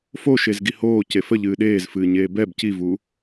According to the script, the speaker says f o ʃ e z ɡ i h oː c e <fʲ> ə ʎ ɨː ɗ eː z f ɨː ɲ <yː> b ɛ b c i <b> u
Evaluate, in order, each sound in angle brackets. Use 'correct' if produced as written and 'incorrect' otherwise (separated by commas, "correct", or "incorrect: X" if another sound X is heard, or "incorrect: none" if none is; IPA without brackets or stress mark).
incorrect: f, incorrect: eː, incorrect: v